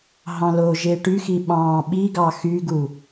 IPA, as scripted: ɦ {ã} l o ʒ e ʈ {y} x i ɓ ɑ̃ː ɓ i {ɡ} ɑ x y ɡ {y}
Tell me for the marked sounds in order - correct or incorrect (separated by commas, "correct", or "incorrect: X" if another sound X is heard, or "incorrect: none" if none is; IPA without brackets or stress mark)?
incorrect: ɑ̃, correct, correct, incorrect: u